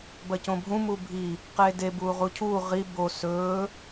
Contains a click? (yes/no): no